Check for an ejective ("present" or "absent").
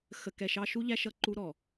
absent